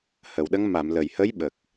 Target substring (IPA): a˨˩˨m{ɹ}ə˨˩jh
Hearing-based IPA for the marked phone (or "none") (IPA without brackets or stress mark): l